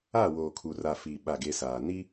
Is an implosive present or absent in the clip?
present